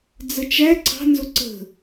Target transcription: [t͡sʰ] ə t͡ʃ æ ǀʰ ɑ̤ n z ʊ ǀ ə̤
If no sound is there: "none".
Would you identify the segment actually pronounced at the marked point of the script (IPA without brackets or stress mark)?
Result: d͡z